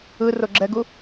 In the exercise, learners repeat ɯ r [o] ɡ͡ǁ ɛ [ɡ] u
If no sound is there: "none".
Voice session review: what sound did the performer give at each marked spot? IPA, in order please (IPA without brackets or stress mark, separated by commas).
o, ɡ